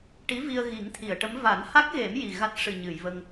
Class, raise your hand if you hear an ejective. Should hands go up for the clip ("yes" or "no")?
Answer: no